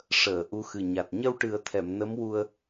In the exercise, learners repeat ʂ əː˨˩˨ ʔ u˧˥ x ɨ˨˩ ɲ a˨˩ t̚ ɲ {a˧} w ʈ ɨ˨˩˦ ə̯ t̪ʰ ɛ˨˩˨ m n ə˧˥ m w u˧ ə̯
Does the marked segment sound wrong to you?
yes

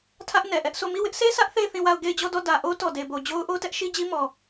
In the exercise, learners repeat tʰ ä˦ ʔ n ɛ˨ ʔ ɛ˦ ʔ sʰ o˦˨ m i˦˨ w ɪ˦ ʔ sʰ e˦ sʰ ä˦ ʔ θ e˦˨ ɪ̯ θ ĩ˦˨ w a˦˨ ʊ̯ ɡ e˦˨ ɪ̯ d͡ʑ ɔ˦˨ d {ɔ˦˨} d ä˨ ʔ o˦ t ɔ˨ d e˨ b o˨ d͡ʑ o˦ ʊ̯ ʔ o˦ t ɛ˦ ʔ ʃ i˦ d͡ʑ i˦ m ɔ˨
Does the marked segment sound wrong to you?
no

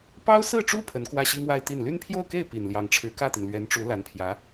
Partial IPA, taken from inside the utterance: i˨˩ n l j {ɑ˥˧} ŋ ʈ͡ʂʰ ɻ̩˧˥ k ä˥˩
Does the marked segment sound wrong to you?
yes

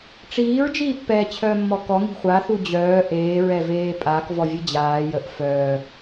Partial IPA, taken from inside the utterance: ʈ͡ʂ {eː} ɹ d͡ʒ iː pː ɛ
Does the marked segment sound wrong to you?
yes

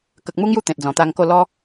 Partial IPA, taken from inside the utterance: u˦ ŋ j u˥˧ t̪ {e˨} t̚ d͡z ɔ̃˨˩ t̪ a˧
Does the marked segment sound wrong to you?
yes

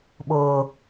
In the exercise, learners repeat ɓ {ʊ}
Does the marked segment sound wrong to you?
yes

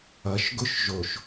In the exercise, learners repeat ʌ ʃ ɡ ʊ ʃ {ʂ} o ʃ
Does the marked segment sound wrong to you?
yes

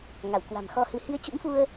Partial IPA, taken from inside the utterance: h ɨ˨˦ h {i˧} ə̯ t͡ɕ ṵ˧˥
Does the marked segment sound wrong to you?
no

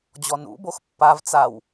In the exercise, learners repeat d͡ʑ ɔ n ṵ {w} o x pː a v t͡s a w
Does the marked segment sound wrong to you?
yes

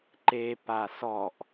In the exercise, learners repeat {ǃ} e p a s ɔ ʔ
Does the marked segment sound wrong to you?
no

